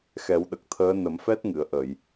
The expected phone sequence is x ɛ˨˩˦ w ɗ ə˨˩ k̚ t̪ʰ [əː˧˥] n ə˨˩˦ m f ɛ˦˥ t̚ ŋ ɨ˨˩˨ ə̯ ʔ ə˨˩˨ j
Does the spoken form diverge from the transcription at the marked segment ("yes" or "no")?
no